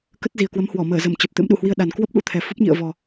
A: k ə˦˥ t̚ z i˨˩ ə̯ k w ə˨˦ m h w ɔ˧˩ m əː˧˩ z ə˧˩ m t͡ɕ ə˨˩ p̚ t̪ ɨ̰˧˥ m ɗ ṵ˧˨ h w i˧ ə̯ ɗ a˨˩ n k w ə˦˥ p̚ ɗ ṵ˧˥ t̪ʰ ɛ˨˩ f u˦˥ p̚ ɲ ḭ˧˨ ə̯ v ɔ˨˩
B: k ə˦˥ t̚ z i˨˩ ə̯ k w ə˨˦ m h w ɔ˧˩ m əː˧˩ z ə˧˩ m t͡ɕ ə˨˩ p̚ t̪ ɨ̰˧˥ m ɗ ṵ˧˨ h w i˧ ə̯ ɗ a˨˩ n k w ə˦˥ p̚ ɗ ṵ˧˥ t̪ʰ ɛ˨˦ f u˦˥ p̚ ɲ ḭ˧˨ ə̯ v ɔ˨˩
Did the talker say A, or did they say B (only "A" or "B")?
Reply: A